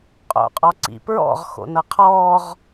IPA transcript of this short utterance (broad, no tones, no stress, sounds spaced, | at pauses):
qʼ o̰ qʼ ɔ ǀ ḭ p ɹ ɔ̰ ʁ x o̰ n ɤ qʰ ɔː ʁ